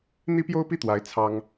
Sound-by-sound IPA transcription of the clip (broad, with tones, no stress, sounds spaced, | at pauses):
n̪ i˥ p j o˥ ʊ̯ p i˥˩ t̪ w a˧˥ ɪ̯ t͡sʰ ɑ˥ ŋ